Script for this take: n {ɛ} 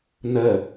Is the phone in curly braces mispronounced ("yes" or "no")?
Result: no